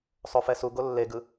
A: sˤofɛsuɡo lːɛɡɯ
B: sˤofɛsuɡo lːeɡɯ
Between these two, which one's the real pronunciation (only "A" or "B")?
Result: B